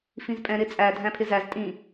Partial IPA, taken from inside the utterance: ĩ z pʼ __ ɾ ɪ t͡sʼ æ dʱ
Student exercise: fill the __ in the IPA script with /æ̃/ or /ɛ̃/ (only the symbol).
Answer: ɛ̃